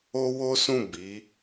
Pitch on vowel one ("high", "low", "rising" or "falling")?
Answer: high